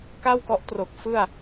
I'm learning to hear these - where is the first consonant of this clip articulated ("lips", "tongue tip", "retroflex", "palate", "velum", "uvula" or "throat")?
velum